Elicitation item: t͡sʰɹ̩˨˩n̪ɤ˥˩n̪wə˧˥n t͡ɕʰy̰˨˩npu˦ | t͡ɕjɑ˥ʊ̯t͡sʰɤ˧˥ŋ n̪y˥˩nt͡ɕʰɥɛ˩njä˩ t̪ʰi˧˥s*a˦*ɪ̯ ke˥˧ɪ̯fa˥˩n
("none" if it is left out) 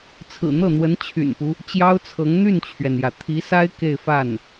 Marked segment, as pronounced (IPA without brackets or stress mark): a˥